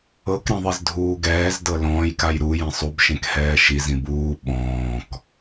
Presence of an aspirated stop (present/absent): absent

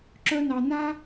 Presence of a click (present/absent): present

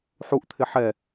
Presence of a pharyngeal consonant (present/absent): present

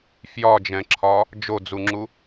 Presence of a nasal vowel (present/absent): present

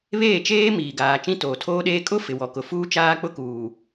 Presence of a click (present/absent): absent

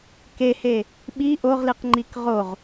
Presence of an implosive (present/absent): present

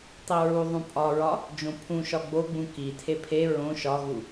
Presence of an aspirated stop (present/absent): present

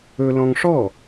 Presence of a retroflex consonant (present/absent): present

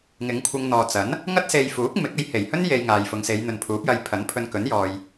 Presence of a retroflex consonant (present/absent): absent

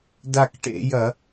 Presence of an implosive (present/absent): absent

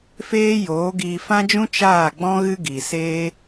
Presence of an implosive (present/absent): absent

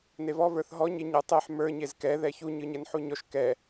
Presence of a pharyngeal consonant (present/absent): present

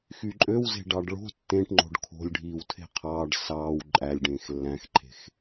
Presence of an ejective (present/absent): present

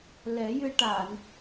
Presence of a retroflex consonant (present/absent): present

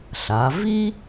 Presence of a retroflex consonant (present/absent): absent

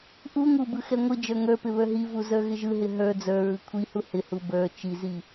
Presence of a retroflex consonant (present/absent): absent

